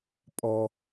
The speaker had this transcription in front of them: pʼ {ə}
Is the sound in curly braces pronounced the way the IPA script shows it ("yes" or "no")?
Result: no